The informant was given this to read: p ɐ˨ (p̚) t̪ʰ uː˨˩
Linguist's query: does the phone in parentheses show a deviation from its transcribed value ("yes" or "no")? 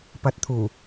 yes